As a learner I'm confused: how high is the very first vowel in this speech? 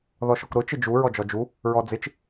mid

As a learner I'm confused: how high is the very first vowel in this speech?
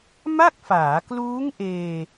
low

